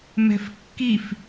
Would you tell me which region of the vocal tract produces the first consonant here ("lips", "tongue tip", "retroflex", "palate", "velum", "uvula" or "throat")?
lips